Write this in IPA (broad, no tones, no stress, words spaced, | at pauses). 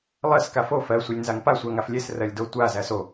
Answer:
lˠɜs kafo fɜ sʷelʲnzaŋpa sʷæŋaflʲes rɜlʲdotʷa zæso